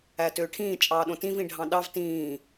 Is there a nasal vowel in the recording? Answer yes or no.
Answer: yes